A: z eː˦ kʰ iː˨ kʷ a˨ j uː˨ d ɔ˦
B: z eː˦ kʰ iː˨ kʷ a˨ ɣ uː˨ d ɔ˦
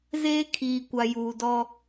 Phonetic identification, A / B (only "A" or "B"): A